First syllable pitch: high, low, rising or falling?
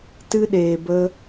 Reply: high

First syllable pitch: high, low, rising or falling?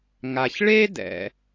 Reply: low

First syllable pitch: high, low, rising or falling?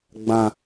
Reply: high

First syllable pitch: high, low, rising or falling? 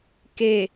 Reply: falling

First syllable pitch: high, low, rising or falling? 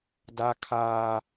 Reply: high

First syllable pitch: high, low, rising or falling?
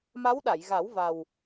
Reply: rising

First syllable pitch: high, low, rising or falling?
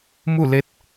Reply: falling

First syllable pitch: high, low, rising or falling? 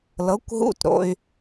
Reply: rising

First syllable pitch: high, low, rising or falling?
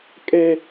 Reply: high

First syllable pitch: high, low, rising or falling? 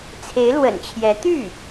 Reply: rising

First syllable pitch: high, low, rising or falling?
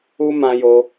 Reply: high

